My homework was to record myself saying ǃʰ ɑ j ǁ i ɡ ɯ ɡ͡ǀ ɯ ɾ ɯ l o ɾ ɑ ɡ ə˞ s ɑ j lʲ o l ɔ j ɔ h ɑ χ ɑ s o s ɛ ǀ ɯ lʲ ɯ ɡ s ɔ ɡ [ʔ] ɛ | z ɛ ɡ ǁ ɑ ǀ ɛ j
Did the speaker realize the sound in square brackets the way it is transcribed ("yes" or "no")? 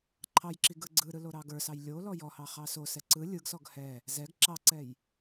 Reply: no